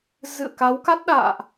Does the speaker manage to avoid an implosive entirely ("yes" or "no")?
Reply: no